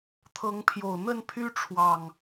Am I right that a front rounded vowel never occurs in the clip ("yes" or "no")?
no